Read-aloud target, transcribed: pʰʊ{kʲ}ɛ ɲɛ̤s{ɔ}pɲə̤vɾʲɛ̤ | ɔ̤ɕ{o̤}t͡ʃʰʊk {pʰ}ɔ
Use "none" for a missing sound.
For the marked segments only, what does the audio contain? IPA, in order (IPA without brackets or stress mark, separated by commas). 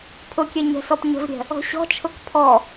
kʲ, ɔ, ɔ̤, pʰ